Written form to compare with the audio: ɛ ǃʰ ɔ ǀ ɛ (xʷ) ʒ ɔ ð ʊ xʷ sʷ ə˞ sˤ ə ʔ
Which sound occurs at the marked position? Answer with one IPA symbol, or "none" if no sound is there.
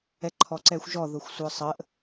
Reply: xʷ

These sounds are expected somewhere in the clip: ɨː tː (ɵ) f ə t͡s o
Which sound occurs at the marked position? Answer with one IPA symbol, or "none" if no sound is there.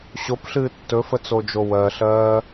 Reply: ɵ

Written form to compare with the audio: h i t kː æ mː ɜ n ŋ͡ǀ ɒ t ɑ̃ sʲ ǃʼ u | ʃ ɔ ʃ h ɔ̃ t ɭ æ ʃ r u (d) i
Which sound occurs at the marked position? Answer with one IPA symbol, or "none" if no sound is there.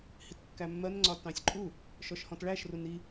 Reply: n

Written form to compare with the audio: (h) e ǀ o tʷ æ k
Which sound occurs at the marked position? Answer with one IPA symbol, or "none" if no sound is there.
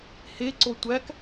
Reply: h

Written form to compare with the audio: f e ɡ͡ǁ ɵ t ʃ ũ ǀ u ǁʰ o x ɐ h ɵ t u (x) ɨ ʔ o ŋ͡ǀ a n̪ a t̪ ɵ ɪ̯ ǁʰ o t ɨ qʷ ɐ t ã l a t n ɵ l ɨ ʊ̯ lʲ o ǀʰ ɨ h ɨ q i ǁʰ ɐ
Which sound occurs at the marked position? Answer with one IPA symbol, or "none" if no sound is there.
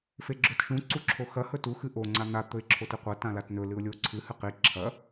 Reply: x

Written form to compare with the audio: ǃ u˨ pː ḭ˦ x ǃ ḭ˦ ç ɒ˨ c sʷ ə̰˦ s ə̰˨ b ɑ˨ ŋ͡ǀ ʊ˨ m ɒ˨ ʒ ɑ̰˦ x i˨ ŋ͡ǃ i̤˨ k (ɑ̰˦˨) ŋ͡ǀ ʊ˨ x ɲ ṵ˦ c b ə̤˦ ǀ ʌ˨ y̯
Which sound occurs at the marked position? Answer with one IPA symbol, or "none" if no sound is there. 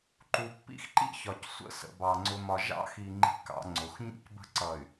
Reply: ɑ̰˨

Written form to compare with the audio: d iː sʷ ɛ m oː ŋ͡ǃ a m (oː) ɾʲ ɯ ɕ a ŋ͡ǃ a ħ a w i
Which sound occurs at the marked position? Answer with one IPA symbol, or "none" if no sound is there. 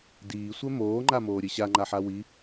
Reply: oː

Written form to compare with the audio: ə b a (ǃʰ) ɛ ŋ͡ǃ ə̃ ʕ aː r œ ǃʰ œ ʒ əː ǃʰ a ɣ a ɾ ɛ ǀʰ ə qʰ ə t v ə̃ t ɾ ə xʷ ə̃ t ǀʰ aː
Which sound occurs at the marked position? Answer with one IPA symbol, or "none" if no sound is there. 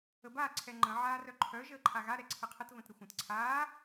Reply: ǀʰ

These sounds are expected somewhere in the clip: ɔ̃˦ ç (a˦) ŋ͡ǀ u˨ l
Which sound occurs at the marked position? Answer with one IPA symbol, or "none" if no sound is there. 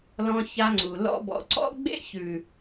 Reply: a˦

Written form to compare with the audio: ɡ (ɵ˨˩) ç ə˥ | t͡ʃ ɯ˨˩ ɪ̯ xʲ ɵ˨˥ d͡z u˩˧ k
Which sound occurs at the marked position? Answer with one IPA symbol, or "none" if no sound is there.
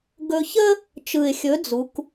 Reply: ɵ˧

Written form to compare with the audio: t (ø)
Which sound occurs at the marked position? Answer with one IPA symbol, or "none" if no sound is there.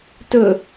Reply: ɵ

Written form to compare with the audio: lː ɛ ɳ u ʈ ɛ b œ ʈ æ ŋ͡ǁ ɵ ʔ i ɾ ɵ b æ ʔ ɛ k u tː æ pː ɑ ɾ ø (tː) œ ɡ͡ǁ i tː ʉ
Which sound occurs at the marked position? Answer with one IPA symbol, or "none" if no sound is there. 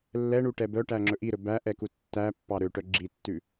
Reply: ʈ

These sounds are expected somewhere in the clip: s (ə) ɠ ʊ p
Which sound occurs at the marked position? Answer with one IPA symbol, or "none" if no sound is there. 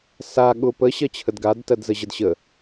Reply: a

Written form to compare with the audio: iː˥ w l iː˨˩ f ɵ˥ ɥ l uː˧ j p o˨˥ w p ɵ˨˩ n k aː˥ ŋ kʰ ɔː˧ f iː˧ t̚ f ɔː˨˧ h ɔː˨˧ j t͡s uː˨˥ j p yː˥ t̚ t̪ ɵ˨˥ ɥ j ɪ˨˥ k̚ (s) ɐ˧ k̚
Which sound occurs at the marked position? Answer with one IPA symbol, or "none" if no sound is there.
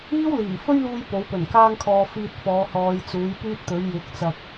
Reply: t͡s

